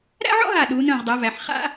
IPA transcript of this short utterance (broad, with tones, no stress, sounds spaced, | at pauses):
ɾ æ̰˥ ʕ ɔ̰˥ ɦ a˧˩ ɗ uː˩˧ n œ̃˧˩ ʁ dˤ æ˩˧ v æ˩˧ ħ χ a̰˥